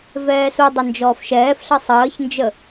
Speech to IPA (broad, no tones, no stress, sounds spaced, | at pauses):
v ɛː s u dˤ ə n d͡ʒ ɔː f ʃ ɛː f ɬ ə sˤ əː ç n d͡ʒ ə